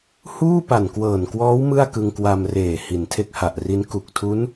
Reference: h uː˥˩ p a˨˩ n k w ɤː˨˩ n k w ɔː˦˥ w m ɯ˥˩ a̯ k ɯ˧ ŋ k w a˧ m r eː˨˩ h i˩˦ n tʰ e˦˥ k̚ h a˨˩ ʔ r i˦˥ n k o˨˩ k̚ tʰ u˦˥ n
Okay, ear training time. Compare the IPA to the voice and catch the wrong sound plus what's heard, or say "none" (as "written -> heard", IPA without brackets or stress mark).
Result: o˨˩ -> u˨˩